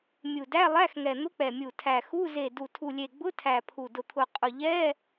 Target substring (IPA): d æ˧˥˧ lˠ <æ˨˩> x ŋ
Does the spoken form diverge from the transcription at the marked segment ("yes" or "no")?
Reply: yes